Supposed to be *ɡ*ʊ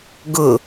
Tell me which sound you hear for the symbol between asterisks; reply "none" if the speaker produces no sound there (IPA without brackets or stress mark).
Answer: ɡ